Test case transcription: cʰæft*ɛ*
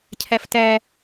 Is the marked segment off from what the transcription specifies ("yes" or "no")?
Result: yes